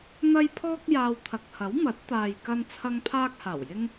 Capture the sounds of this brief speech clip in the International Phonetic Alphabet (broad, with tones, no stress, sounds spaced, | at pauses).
n̪ ɐ˥ j pʰ ɔː˥ k̚ j aː˧ w t̪ʰ ɐ˨ k̚ h ɐ˨˥ w m ɐ˨˥ t̚ t̪ aː˨ j k ɐ˥ n t͡sʰ ɐ˥ ŋ pʰ aː˥ k̚ h aː˨˩ w j ɪ˥ ŋ